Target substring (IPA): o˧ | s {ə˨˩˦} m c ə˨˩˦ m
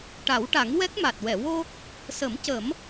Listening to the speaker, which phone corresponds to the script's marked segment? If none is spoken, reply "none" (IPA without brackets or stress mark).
ə˨˩˦